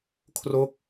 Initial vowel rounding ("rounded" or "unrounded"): rounded